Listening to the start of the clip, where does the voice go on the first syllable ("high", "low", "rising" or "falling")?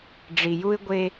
low